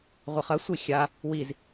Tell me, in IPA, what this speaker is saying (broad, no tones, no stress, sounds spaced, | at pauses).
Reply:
ʁʷ ɐ χ ɐ sʷ i xʲ a | w i z